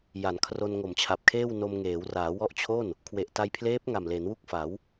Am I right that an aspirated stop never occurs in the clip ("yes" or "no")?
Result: no